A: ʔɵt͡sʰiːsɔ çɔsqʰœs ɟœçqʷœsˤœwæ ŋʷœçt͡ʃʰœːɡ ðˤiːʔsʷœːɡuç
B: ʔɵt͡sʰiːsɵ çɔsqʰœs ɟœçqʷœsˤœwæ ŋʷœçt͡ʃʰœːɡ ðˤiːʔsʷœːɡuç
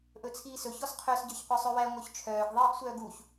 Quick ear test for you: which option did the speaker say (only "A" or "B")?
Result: B